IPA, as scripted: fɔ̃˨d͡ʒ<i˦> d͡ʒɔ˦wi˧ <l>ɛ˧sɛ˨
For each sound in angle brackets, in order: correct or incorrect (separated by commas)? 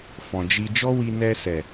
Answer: incorrect, incorrect